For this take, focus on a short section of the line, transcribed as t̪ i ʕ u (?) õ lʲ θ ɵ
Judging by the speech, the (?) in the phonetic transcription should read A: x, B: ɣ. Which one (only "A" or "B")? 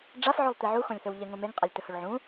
A